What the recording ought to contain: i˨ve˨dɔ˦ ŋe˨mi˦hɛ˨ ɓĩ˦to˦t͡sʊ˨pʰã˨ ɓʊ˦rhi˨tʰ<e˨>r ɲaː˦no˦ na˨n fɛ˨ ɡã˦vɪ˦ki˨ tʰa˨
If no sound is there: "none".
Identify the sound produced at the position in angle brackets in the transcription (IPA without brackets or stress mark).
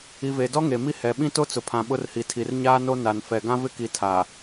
i˨